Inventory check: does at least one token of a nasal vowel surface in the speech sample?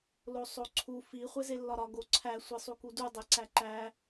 no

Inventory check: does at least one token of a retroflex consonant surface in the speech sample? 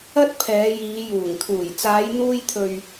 no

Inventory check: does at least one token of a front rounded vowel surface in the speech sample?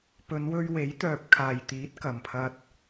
yes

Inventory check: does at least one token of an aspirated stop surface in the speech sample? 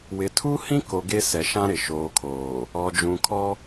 yes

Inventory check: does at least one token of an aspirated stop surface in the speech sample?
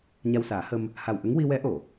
no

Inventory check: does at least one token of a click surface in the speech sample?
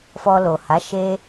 no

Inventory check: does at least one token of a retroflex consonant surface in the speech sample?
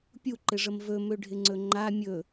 yes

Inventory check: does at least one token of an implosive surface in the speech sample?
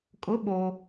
yes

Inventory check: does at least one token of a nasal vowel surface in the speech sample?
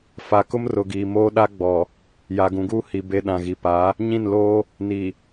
yes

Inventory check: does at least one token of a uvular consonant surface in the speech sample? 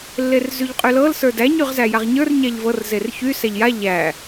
yes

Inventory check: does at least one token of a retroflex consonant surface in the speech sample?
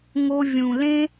no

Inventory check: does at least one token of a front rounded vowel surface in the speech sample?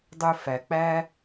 yes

